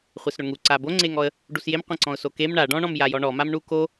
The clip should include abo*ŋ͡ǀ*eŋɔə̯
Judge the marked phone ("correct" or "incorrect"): correct